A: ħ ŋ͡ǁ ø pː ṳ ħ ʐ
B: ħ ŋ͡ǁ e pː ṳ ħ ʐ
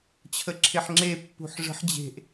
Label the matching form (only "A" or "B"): B